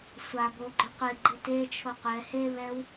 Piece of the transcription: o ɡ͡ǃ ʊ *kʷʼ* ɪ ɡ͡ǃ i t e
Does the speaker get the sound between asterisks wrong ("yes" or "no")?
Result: yes